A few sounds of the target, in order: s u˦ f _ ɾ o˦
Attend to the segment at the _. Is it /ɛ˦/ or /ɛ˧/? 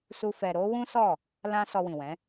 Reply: ɛ˧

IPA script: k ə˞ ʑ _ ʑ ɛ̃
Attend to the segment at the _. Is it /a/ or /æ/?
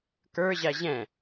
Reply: æ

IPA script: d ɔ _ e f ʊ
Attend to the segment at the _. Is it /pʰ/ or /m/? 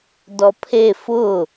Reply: pʰ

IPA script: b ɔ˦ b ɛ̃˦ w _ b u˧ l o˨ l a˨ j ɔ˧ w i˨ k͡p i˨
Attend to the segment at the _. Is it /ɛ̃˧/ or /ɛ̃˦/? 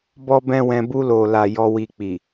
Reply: ɛ̃˧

